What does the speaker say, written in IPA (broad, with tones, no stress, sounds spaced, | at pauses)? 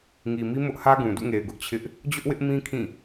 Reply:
ŋ i˨ m i˦ m ʊ˦ ʔ h ä˦ ɡ ũ˨ d ṵ˦˨ ŋ e˨ ɪ̯ ɡ ʊ˦ ʔ t͡ɕʰ ɪ˦ ʔ | d͡ʑ ʊ˦ ʔ w ɪ˦ ʔ m ĩ˦ kʰ ĩ˦˨